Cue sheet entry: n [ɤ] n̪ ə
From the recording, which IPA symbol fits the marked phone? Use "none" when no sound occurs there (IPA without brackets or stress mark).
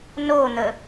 o